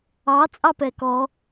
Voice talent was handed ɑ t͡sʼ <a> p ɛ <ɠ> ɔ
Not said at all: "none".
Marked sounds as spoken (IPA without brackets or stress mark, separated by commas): ɑ, k